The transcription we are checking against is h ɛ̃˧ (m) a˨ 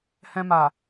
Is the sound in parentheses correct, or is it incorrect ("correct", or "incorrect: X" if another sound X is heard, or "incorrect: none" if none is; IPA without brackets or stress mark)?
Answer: correct